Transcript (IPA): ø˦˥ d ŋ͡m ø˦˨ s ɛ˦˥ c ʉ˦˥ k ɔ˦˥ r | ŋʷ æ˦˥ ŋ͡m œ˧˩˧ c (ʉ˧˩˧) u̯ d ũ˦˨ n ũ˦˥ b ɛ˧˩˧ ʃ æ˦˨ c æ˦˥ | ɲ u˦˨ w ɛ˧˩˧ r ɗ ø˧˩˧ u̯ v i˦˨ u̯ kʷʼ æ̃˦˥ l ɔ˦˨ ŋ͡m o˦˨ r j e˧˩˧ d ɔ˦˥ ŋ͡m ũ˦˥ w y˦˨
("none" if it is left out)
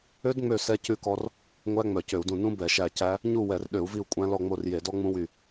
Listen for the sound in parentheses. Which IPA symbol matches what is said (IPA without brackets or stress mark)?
ø˧˩˧